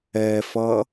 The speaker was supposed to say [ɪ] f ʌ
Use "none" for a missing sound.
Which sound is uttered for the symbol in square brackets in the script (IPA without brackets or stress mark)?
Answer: ɛ